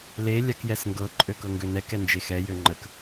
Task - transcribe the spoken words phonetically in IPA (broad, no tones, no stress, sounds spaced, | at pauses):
l e lʲ a k j ɛ s ŋ ɡ ɤ ǃʼ ø k ɤ ŋ ɡ ø n ɛ k ɛ n d͡ʒ e x ɛ j ø ŋ͡ǃ ə k